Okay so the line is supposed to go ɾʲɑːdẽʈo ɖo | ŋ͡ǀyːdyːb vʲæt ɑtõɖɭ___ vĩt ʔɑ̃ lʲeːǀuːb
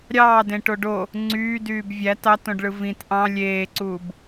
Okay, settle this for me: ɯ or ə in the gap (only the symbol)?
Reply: ɯ